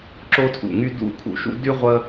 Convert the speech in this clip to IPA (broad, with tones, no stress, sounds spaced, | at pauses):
ǁ o˥ tʰ ṵ˧˩ ŋ y˥ d ṵ˥˧ kʰ ṵ˧ ʃ ṵ˥ d y˥ ʁʷ ə˥